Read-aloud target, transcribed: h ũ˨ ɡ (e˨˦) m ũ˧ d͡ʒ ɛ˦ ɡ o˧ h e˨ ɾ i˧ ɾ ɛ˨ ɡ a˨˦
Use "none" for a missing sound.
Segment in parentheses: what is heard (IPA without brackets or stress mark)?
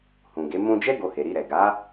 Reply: e˨˦